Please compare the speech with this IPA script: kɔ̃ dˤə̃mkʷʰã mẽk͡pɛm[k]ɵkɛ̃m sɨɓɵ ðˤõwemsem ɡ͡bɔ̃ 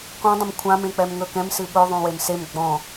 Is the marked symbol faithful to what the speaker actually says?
no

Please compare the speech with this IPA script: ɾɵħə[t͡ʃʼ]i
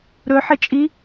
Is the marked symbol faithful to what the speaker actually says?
yes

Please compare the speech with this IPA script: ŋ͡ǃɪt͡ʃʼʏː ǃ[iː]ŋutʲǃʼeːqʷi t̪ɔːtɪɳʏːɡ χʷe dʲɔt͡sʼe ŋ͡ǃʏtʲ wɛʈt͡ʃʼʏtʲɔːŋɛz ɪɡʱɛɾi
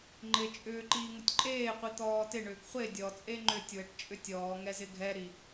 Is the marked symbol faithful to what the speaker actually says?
yes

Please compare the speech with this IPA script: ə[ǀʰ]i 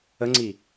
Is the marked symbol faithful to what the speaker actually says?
no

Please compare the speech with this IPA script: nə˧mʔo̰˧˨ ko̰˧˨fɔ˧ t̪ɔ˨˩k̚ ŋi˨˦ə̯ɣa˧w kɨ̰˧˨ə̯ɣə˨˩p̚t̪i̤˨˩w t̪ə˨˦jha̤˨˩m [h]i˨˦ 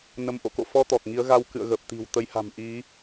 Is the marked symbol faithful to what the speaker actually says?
no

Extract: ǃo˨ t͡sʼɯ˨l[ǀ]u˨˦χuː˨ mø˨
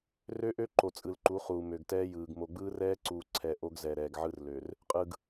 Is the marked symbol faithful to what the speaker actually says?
no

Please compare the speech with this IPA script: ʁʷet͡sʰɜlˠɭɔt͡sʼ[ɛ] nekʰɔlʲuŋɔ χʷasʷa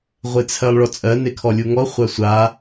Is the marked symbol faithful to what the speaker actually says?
no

